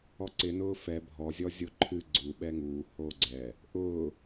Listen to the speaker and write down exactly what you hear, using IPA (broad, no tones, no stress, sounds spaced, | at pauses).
ɔ ǀ ɪ n ʊː f ɛ bʱ ɔ zʲ ɔ zʲ o ǃʰ ɨ ɡ͡ǀ u ɓ ɛ ŋ uː h oː ɡ͡ǀ ɛ | ʔ ʊː